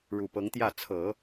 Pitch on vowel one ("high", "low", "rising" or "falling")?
low